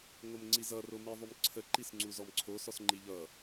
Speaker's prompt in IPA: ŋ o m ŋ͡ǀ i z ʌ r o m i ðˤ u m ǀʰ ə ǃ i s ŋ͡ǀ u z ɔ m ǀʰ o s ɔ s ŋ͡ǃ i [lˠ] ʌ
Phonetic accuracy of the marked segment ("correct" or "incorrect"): incorrect